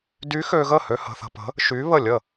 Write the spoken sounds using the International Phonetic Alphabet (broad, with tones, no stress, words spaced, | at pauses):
dy˧˥xø˧ɣə˥˩hø˧ hə̤˧θə̤˧pə̤˧˥ | ʃy˧˥βə˥˩lʲə˥˩